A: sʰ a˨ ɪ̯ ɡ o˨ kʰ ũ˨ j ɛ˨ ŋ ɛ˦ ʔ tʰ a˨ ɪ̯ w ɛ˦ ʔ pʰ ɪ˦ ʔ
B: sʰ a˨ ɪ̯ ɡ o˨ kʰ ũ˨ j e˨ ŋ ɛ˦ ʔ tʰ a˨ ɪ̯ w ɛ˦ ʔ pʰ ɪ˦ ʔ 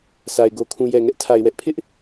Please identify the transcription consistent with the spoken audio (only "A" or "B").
A